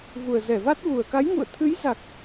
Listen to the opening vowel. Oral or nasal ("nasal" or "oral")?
oral